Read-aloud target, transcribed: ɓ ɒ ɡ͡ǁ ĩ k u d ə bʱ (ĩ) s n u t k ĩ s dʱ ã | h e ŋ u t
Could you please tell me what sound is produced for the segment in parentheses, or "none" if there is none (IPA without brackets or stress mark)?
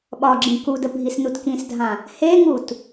i